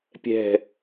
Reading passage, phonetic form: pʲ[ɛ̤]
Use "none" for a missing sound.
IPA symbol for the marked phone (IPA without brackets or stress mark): ɛ̤